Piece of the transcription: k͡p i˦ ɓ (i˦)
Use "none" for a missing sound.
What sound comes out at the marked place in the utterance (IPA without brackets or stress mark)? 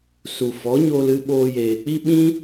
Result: ĩ˦